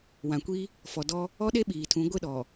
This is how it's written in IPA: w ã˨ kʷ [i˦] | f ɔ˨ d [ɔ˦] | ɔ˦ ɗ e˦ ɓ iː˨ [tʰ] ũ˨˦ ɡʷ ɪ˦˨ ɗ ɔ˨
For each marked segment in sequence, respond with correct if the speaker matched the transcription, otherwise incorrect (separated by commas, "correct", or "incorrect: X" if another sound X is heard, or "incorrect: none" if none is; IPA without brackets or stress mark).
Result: correct, correct, correct